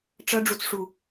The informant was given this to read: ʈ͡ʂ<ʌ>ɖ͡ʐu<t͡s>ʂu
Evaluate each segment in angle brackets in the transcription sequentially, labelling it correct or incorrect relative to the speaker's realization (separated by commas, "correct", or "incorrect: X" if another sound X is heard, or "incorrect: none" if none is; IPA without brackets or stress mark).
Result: correct, correct